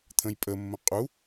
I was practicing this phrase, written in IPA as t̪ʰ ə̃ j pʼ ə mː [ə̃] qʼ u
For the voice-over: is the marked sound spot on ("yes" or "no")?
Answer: yes